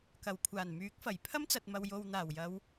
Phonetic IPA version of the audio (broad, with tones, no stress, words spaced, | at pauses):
kɐ˨˩wkʷʰaː˨˩nmyː˨˥k̚fɐ˨˩j pʰɐ˥mt͡sɐ˨t̚mɐ˨w jo˨wn̪aː˨˩wjɐ˨˧w